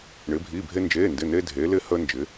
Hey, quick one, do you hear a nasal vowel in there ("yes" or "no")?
no